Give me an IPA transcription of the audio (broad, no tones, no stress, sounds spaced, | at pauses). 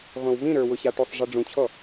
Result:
ʁʷ ĩ w v ĩ ɾ ə˞ w ʊ ɕ a ʈ u sˤ ʐ i ɖ͡ʐ ũ t͡ɕʰ ɔ